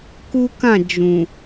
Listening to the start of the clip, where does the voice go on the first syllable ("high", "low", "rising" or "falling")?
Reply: high